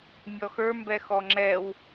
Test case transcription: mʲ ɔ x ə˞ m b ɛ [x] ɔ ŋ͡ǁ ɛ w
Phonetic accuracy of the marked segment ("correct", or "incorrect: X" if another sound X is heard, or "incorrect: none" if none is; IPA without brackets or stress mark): correct